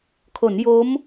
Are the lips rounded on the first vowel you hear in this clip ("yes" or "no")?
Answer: yes